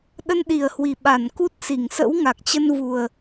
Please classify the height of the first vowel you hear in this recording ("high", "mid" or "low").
mid